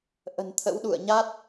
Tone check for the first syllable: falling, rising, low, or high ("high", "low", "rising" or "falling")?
low